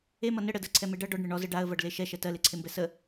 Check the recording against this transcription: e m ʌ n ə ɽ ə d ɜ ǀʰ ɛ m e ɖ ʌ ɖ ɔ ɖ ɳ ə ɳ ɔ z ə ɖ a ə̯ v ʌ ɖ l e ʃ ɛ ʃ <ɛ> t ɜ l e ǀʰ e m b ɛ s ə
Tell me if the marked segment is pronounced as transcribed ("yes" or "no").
yes